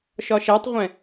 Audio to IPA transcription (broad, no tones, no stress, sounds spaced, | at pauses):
ʃ ɒ ʃ ɛ tˤ ʁʷ ɛ̃